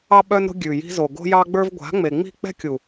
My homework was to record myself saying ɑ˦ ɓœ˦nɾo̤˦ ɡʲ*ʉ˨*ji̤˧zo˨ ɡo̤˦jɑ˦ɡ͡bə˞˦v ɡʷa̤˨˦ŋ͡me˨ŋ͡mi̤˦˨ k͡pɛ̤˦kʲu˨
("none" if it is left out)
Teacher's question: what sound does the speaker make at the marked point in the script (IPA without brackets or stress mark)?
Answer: ʉ˨